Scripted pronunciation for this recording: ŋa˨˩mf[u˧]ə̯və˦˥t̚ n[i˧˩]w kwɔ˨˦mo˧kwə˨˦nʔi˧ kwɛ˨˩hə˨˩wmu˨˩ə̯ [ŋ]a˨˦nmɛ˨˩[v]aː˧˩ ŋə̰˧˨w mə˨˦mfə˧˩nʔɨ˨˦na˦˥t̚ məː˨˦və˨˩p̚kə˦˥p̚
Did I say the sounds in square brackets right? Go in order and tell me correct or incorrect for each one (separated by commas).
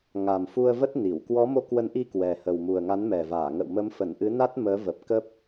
correct, correct, correct, correct